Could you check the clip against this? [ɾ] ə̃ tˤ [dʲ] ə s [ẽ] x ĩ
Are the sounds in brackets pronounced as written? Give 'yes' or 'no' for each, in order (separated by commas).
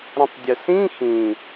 yes, yes, no